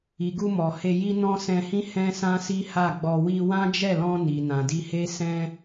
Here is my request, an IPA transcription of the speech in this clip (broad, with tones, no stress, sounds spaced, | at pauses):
i˨ ɡ u˧ m ɔ˨ h e˧ j i˦ n ɔ̃˦ s ɛ̃˧ h ĩ˦ h ɛ̃˦ s ã˦ s i˦ h a˦˨ ɡ͡b ɔ˧ w i˧ w ã˦ d͡ʒ ɛ˦˨ l ɔ̃˧ n i˨ n ã˨ d i˧ h e˦ s ɛ̃˦